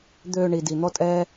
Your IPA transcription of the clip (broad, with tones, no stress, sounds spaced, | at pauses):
d̪ øː˧ ɳ i˨ d i˨ n̪ ɔ˦ tʼ ɛː˦